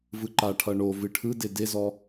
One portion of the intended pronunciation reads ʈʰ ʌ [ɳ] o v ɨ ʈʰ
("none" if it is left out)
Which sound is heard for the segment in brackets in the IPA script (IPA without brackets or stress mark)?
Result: ɳ